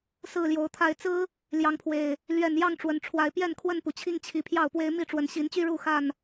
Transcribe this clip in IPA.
s ɹ̩˥˨ l j o˨˦ ʊ̯ t̪ʰ a˥˨ ɪ̯ t͡s ɹ̩˦ | l j ɑ˨˦ ŋ pʰ w e˨˩ ɪ̯ | l ɥ ɛ˨˩ n j ɑ˥˨ ŋ ʈ͡ʂ w ə˨˦ n ʈ͡ʂʰ w a˨˦ ɪ̯ p j ɛ˥˨ n kʰ w ə˥˨ n p u˩ t͡ɕʰ i˥˨ ŋ t͡ɕʰ i˨˩ pʰ j ɑ˥˨ ʊ̯ p w e˦ ɪ̯ m i˥˨ ʈ͡ʂ w ə˨˦ n ɕ i˨˦ n t͡ɕ y˦ ɻ u˥˨ x a˥˨ n

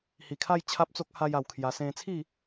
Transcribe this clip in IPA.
h i˨˩ kʰ a˥˧ j t͡ɕʰ a˦ p̚ t͡s o˦ k̚ h a˦ j a˧ w kʰ j a˧ s ẽ˧ t͡sʰ i˥˧

